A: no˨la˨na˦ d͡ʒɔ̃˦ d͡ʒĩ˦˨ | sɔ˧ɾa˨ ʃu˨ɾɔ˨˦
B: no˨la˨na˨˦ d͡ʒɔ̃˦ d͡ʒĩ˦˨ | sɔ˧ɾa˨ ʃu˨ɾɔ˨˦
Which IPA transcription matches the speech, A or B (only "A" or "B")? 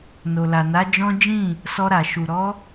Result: B